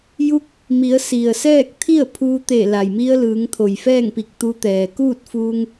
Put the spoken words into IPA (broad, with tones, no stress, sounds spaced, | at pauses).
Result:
j u˧˥ k̚ | m i˩˧ ə̯ s i˩ ə̯ s ɛː˥˨ k̚ t̪ʰ i˥˨ ə̯ pʰ uː˧ t̪ e˧˩ l a˩ j m i˧ ə̯ l ɯː˩˧ ŋ t̪ʰ o˩ j f ɛː˥˨ ŋ p i˧˩ k̚ t̪ u˧ t̪ ɛː˩ k uː˥˨ t̚ f uː˧ ŋ